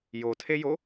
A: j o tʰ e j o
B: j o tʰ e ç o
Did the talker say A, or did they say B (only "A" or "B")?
A